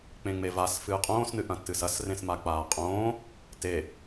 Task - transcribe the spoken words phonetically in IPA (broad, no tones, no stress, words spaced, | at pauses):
k͡pẽŋ͡mevas fɨːqʼõːs nɨʔɐ̃tːɨsɐs rẽsmak͡paːqʼõː | te